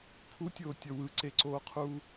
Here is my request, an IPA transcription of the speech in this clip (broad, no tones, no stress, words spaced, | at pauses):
pʰutʲoːtʲʌ wɯǀeǀoːqʰuː